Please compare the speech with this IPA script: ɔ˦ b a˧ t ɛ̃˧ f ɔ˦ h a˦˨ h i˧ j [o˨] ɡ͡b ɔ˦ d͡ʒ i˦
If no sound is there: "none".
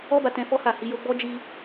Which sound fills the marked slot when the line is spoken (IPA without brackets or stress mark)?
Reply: o˧